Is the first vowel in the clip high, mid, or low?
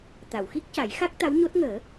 low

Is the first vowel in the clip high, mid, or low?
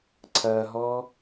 low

